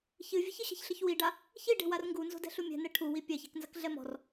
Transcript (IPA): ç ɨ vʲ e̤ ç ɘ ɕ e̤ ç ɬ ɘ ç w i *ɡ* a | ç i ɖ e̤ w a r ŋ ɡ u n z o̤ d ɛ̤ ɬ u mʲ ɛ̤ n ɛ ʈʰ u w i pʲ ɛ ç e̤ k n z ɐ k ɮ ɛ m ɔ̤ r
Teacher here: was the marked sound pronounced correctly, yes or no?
no